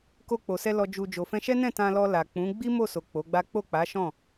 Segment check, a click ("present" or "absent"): absent